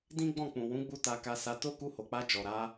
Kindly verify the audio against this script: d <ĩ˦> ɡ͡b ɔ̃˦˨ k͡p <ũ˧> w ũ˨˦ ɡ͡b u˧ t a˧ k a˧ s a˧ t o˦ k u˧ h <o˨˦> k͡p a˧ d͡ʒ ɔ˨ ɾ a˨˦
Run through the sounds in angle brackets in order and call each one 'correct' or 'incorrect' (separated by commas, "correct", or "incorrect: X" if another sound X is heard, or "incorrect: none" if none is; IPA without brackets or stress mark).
correct, incorrect: ũ˨, incorrect: o˨